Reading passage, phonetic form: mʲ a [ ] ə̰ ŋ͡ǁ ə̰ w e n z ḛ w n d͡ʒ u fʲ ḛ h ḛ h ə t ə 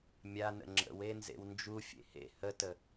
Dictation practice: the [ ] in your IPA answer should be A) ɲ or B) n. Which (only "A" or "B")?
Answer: B